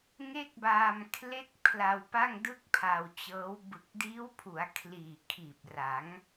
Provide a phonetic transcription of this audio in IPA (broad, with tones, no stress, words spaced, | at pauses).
ŋe˥˩k̚baː˧m kʰle˥˩k̚ pʰla˧wpa˥˩ŋdɯ˥˩k̚ pʰa˧wt͡ɕɤː˦˥w bɯ˨˩k̚diː˦˥wpʰu˩˦a̯ kʰliː˨˩kʰiː˨˩p̚ ra˩˦ŋ